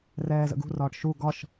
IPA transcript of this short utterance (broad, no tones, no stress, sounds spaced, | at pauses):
r ɛː z ə̰ ɡ ṳ r ɒː ʈ ʃ u ɡ ɒ ʃ